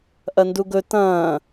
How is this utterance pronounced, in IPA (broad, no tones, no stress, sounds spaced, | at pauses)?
ʔ ɐ n d u ɡ ɵ t ɐ̃ː